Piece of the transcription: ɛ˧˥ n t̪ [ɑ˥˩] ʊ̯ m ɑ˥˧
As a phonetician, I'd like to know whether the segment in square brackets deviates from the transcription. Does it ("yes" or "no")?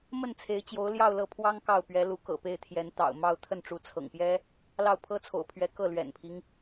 yes